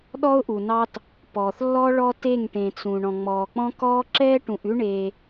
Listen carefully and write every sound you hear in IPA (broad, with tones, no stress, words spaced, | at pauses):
ɗɔ˦ʊ̯ʔu˨nɑ˦t | pɔː˨θlːɔ˦ɭɔ˦ te˦˨ŋʈẽ˨t͡sũ˨ ɳɔ̃˨ŋ͡mɔː˨k͡pɔ̃˦ kɔː˦ǁɛː˦ʈũ˨ʔʉ˦ ɳe˦